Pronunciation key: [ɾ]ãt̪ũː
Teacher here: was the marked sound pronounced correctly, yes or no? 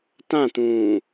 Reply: no